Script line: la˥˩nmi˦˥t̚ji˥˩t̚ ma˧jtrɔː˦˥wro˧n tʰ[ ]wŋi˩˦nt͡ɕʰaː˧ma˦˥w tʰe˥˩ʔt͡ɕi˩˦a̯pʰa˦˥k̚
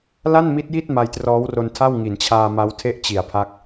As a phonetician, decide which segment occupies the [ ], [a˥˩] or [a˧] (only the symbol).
a˥˩